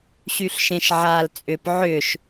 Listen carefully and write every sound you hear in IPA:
ɕyɬʃẽʃʕaːl t͡sʼʏp ʕʏʃ

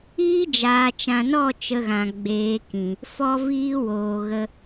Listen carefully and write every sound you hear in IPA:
iː˦d͡ʒaː˨t͡ʃã˨nɔ˦˨ t͡ʃə˧ɣã˨ ɡ͡beː˨˦kĩ˨ | fɔ˦viː˦woː˨ɣə˧

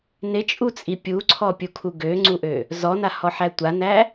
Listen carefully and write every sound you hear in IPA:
nɪt͡ʃʼut͡sʼi pʲuǀʰɔpʲukʰu ɡøŋ͡ǀuʔø | zɔnahɔħæ tʷanæ

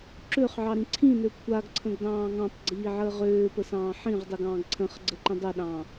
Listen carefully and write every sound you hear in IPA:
ǁøχʕɑɾĩ ǀʰĩnø kʷʰaɡǀʰə̃ɡdɑ̃ː ŋɑ̃tˤɡ͡ǀiːʕəː ʁøːpəsɑ̃ː ħĩʁdˤɨɡɑ̃ːɡ ǀʰə̃χɡ͡ǀəǃə̃ dˤəɗɑ̃

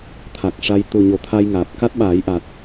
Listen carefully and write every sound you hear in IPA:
t̪ʰa˨˩k̚ʂa˧j t̪u˨˩ ɲo˨˩˦t̪ʰa˧jŋaː˨˩p̚ ka˦˥t̚ɓaː˨˩˦jʔa˨˩t̚

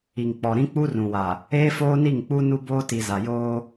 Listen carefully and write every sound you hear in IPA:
i˨ŋk͡pɔ˨ɾĩ˦ k͡pu˦rũ˨wa˨ | eː˦foː˦ni˦˨ŋk͡pu˦ nu˦ boː˦ti˨ za˨joː˦

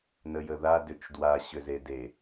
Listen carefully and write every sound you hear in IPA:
nəjəða dʏt͡ʃdwa ɕʏzede

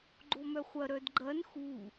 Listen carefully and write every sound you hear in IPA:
ɡ͡ǃomœχʷɐ ɾœdɡ͡ǃɐn xu

